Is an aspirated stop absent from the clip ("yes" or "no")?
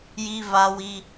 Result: yes